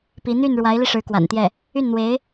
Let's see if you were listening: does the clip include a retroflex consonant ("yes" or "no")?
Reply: yes